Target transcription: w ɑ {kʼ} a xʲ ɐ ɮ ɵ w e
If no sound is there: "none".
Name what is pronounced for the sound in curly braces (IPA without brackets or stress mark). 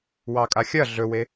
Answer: kʼ